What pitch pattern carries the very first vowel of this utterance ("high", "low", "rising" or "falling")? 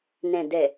low